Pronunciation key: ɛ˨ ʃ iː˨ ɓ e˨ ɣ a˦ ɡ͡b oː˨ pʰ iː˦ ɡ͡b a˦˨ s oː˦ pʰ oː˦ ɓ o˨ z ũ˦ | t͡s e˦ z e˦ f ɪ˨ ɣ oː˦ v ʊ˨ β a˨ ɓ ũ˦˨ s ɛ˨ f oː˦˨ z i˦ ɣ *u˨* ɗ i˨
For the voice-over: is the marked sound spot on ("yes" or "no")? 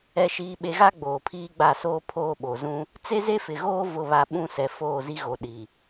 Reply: no